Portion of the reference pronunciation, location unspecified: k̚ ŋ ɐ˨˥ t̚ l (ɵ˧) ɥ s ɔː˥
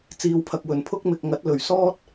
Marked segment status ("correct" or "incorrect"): incorrect